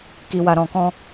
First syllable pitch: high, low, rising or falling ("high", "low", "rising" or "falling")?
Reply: low